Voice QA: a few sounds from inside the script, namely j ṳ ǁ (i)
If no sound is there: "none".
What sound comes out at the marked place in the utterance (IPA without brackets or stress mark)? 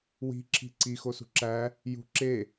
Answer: e